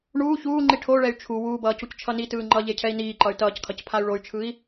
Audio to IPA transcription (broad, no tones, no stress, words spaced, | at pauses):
ɳuː çuːŋ͡ǃi ʈʰoɭɛy̯ t͡ʃʰu wuːbʌː cuct͡ʃʰʌnitɯː ŋ͡ǃʌ ʎecʰɛi̯niːǃʌy̯ tʌːckʰʌc pʰay̯ɭoy̯t͡ʃʰɯi̯